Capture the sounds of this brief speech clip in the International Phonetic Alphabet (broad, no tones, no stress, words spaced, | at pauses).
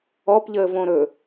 ɔpʎəːvõ ɾɵ